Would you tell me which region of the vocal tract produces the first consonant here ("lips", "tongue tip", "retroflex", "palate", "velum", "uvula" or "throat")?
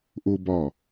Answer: throat